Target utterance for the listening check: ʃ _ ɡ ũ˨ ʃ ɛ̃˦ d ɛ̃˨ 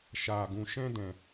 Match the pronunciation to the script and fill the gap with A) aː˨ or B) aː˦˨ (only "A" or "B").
A